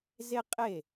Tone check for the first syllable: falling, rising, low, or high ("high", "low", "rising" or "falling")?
high